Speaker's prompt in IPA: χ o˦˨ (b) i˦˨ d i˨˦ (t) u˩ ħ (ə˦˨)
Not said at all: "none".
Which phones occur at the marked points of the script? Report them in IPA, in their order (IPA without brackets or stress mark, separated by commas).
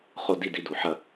d, d, ɐ˦˨